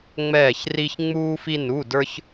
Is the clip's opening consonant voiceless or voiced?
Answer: voiced